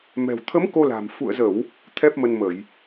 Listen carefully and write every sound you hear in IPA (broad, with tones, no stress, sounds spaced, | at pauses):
m ɛ̤˨˩ w t̪ʰ ə˨˦ m k o˧ l a̤˨˩ m f ṵ˧˨ ə̯ z ə˧˩˨ w | t̪ʰ ɛ˦˥ p̚ m ə˧ n m ə˧˩˨ j